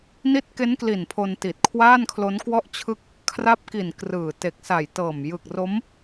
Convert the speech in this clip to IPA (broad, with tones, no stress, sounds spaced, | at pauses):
n i˦˥ t̚ k e˦˥ n k l i˨˩ n pʰ o˧ n t i˨˩ t̚ kʰ w aː˥˩ n kʰ l o˦˥ n k w ɔ˥˩ ʔ t͡ɕʰ ɯ˥˩ k̚ | kʰ r a˦˥ p̚ k i˨˩ n k r ɯː˨˩ t e˨˩ k̚ s a˨˩ j t ɤː˨˩ m j ɯ˨˩ k̚ r o˦˥ m